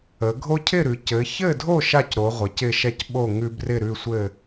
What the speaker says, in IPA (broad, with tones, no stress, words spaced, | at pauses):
ə˩˧ɡʱo˦cʰɪ˥˨ɾʉ˩˧ cɘ˩˧çɘ˥˨dʱo˥˨ ʃa˥˨cɾo˩˧ ʁʷɪ˩˧cɪ˥˨ʃɛ˥˨c ɓo˥˨ ŋʉ˦brɪ˥˨ɾʉ˥˨sʷɘ˥˨